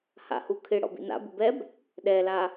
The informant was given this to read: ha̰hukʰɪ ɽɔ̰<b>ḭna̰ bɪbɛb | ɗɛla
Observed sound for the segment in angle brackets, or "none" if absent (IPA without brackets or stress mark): b